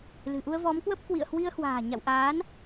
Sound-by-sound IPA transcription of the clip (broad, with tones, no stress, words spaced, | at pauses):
lɨ̤˨˩ ʔu˧ə̯vɔ˨˦mkwə˦˥p̚ kwḭ˧˨ə̯hwi˧ə̯hwa̤ː˨˩ ɲa̰˧˨wʔaː˨˦n